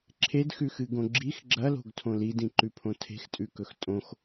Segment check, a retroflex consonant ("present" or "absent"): absent